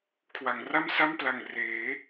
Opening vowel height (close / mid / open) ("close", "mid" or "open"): open